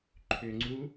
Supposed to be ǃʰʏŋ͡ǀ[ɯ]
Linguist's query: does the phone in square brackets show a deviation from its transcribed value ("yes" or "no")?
yes